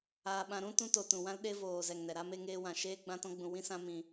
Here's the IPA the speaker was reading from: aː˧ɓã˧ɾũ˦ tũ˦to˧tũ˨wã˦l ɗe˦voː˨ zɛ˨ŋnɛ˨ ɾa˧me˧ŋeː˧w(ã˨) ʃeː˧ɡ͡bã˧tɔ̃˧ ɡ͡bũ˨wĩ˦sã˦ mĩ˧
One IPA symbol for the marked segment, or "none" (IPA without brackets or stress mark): ã˨